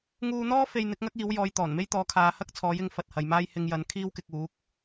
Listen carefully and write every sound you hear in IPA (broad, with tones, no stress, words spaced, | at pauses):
ŋuː˧n̪ɔː˥ fe˧jn̪ɪ˨˥k̚ŋɐ˥k̚ iː˨˥wjɔː˨˧j t̪ɔː˨˩nme˥jt̪ɔː˨˥ kʰaː˨˧hɐ˥k̚t͡sʰɔː˨˥jɪ˨˧ŋ fɐ˨t̚hɐ˨jmaː˥j hɪ˧ŋjɐ˨˥nkʰiː˥wkɪ˧k̚ uː˨˥k̚